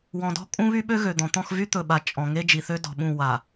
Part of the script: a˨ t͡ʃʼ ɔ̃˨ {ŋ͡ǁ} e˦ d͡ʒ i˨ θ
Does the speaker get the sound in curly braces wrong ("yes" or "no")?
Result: yes